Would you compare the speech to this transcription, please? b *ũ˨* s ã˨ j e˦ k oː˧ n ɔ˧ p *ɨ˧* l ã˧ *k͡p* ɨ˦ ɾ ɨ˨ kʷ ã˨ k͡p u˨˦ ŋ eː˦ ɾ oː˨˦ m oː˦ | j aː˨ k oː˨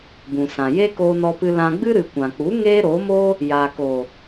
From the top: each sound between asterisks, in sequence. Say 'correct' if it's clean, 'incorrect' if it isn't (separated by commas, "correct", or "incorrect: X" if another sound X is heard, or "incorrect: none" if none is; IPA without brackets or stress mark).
correct, correct, incorrect: ɡ͡b